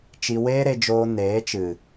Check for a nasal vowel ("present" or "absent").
absent